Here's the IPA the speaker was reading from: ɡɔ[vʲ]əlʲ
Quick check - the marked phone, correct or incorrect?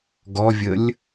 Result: correct